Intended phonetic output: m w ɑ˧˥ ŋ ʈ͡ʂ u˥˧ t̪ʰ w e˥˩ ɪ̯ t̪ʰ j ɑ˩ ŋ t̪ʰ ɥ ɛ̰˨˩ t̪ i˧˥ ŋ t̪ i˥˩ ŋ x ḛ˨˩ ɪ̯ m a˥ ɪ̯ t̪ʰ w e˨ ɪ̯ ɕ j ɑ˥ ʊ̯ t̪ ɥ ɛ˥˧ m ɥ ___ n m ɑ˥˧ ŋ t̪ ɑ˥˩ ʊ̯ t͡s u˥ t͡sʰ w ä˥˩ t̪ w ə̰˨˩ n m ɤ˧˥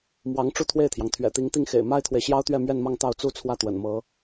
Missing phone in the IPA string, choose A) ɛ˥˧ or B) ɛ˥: A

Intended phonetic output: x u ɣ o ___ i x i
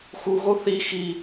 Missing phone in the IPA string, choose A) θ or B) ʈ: A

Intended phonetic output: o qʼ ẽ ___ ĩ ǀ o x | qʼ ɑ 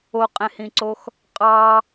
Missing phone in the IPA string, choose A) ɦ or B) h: B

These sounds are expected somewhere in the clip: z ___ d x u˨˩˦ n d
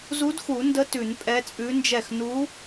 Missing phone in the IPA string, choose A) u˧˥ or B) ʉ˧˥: A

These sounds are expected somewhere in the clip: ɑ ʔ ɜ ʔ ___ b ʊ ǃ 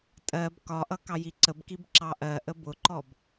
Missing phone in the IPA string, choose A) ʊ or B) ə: B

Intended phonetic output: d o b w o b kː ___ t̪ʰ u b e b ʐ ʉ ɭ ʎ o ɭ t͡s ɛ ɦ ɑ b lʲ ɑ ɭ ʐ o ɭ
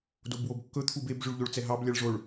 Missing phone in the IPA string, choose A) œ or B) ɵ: B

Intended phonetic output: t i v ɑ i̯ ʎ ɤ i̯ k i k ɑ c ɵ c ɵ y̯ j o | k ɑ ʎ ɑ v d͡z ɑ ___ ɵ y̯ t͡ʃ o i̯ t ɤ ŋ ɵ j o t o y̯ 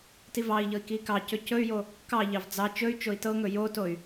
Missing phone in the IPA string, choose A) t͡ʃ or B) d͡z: A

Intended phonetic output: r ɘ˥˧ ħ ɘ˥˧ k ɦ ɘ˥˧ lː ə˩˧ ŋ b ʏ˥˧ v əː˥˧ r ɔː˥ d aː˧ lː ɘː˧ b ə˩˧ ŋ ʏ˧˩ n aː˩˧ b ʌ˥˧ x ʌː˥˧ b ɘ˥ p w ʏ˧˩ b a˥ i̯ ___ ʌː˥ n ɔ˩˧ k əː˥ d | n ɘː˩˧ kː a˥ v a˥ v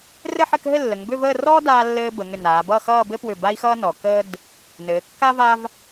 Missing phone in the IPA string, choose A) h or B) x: B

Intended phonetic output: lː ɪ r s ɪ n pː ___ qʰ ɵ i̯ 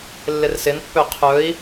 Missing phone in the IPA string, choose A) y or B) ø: B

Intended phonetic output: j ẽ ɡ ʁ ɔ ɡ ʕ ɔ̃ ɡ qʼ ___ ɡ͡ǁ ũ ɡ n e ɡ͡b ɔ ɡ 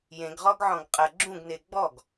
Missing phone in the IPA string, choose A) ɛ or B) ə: B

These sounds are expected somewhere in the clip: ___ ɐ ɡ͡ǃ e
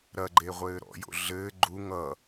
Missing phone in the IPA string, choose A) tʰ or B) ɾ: B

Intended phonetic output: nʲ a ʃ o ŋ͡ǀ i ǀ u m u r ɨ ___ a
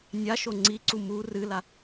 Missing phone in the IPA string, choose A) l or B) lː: A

